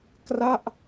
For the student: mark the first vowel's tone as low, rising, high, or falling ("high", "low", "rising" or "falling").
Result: falling